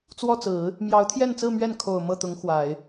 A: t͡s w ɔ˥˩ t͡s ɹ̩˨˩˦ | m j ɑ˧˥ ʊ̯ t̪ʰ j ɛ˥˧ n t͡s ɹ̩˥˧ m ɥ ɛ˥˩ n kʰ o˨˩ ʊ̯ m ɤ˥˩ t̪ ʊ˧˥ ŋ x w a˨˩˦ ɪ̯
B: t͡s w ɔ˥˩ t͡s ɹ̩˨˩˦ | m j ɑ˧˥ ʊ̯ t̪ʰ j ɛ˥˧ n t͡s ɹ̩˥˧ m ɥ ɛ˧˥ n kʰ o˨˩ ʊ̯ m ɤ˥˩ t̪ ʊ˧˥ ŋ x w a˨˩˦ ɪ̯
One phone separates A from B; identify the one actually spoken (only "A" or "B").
A